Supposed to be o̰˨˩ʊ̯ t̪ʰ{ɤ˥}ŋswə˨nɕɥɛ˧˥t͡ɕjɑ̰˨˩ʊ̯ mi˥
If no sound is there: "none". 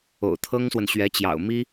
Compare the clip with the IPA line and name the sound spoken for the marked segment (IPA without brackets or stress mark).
ɤ˥